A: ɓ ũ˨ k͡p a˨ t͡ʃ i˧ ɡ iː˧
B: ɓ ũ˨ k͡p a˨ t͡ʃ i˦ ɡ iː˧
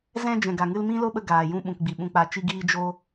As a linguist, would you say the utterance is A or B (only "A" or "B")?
A